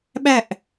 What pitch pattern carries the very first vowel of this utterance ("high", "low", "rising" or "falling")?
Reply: falling